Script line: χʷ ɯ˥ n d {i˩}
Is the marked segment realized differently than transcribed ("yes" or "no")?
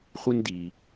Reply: no